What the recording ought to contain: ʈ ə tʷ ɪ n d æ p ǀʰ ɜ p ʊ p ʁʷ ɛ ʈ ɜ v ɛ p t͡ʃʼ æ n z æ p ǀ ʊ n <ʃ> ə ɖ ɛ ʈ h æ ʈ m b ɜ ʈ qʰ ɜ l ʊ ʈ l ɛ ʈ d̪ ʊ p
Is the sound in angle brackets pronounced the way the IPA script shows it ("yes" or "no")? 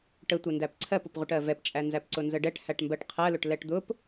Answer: no